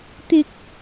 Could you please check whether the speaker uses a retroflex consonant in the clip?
no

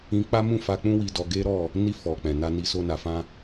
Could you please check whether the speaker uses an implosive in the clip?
no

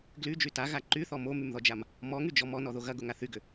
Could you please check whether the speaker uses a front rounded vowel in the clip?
yes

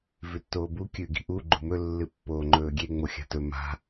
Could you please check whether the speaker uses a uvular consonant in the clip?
no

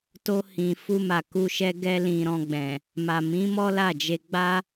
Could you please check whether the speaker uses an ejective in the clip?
no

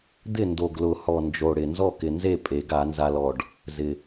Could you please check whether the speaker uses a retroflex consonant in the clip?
yes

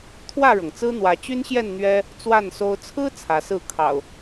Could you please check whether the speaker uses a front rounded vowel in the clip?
yes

